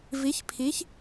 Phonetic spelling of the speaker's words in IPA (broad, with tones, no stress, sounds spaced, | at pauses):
v i˨˥ ç pʰ i˨˥ ç